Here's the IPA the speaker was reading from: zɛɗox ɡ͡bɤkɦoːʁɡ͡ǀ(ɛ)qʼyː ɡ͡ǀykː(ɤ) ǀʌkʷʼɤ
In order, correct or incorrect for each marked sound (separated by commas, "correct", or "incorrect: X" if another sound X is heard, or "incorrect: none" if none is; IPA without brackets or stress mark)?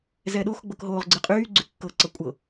incorrect: ɨ, correct